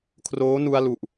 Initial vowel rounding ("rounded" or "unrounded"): rounded